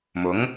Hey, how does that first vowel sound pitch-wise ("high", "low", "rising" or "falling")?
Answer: rising